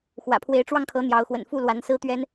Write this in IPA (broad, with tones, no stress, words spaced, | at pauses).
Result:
xwä̰˨˩pʰwe˨˦ɪ̯ʈ͡ʂwɑ˧ŋkʰɤ˨˦ n̪jɑ˨˦ʊ̯xwə̰˨˩n fu˥˨lwa˨˦nsɹ̩˦t̪ɥɛ˦n